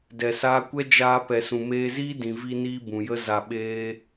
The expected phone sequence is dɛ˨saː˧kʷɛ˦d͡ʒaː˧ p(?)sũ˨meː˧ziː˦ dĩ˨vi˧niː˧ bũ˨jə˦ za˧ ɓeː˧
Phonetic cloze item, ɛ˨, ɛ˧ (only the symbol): ɛ˨